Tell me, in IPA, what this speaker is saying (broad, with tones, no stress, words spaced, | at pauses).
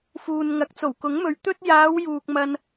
fuː˨nŋɐ˨˥k̚ t͡so˨˩wkʊ˨˥ŋmɵ˨ɥ t̪ɵ˥t̚ jaː˨˧wjuː˨k̚ mɐ˧n